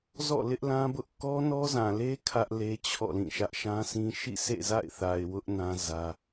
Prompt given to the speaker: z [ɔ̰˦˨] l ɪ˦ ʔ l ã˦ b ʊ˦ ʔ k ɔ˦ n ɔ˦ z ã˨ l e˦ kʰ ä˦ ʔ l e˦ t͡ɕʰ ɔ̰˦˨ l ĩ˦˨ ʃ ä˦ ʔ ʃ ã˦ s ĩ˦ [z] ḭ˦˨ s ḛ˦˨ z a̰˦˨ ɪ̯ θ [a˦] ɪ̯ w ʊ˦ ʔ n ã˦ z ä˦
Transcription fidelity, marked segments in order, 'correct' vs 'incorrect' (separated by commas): correct, incorrect, incorrect